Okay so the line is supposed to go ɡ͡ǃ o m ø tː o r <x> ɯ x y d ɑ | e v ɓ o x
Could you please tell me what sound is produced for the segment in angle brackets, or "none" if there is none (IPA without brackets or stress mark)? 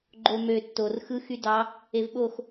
x